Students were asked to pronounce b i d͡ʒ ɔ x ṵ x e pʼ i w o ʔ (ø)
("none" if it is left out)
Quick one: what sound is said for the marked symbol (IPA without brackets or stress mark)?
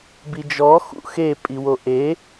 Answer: e